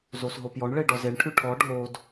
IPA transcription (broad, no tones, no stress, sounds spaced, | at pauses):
z o s ɦ o p j ɔ ɳ ɭ e ɖ ɔ z e ɳ ʈʰ ʉ ʈʰ ɔ ɖʱ o d